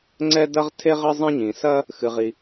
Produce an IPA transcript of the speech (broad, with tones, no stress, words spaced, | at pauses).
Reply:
ŋ͡ǀɛ˥ dɐ˥ʁtʰe˥ʁɘ˥ zˤĩ˥ɲĩ˩ sɐ˥ | xɨ˩ʁi˩